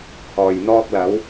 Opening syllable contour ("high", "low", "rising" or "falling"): low